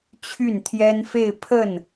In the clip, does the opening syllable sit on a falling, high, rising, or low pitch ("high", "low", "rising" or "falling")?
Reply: falling